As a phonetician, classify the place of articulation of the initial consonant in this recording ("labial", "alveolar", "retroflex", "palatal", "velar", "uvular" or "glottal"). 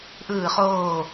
glottal